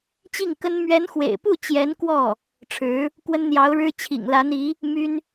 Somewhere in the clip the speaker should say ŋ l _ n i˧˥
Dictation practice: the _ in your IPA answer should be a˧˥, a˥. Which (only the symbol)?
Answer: a˧˥